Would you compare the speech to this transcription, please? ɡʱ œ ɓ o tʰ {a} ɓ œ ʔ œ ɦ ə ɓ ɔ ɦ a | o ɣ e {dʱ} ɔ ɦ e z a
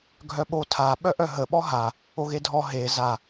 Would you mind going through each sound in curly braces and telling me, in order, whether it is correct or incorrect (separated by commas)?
correct, correct